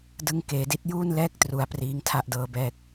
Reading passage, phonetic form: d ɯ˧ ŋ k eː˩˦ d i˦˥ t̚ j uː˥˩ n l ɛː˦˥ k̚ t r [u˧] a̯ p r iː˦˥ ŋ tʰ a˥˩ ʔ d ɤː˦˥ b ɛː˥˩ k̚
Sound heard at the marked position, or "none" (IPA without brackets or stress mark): u˩˦